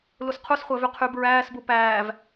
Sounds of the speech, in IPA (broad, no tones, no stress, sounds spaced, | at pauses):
l u s qʰ u s χʷ æ v y qʰ y b ɹ æː s b u p æː v